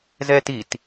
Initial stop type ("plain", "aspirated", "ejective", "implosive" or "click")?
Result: plain